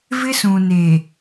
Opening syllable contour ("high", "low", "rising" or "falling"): high